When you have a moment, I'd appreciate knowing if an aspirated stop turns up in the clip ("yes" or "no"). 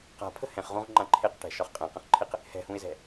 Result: yes